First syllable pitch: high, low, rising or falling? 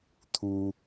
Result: high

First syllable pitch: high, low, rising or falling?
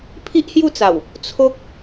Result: high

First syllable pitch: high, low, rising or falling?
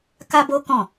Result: high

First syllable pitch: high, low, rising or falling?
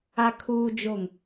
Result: high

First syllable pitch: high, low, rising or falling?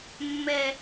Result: high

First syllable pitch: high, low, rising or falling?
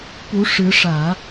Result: rising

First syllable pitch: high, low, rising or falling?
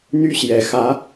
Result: high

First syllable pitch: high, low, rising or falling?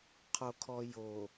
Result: low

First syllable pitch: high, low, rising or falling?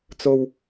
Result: high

